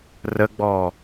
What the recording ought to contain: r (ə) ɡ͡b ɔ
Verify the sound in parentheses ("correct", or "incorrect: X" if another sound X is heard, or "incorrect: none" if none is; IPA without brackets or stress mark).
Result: correct